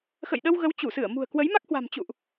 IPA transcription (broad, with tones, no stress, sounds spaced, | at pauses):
x ə̰˧˨ j ɗ ə˧ w ɣ ə˨˦ w t͡ɕ u˧˩ s ɨ˧˩ ə̯ m ṳ˨˩ ə̯ k w ə˨˦ j m a˦˥ k̚ h w a̤˨˩ m t͡ɕ ṵ˧˨ ʔ